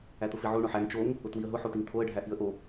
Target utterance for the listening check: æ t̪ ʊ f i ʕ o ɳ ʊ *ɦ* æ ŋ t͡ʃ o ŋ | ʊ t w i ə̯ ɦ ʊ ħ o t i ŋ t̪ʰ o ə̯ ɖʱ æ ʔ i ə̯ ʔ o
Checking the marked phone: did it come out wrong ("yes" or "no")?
yes